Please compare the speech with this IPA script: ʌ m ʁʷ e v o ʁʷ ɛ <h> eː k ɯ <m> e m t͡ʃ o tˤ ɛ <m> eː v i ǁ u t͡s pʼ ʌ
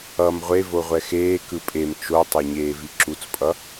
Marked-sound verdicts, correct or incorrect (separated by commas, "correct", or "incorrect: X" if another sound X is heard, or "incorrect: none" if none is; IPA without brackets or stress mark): incorrect: x, incorrect: pʼ, incorrect: ɲ